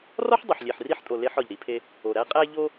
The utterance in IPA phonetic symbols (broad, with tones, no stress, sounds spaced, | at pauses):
r ɒ˥ ħ dˤ u˩ ħ lʲ e˩ ħ r i˧ ħ tʼ o˩ l e˧ ħ ɒ˩ ʎ ɾ i˧ pʰ e˧ | o˩ ɾ æ˧ qʼ æ˧ ʎ o˧